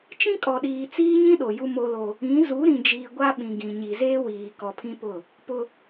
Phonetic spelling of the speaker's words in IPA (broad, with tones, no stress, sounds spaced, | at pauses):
t͡ʃ ĩ˦ kʼ ɔ˨ ɗ iː˨ t͡s iː˦ ɲ ĩ˦ ɗ o˨ j u˦ m o˦ l o˦ | ĩ˨˦ z u˨˦ ɾ ĩ˨ d͡ʒ iː˨ ɡʷ a˦ ɓ ĩ˨ ɡ ĩ˨ ɲ i˨ z eː˦ w iː˨ k ɔ˨ pʰ ĩ˦ p ʊ˦˨ | p ʊ˦